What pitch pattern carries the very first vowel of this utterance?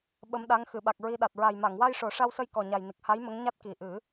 rising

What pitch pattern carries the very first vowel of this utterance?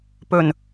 low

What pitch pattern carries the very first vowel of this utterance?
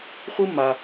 high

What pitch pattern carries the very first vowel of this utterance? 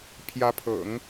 rising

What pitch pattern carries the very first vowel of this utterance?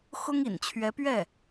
high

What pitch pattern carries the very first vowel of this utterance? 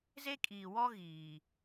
high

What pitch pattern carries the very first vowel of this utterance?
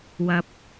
low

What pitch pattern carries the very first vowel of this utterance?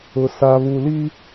low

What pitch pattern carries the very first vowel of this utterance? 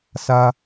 high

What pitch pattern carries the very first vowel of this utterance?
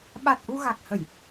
low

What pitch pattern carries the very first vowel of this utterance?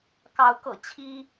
rising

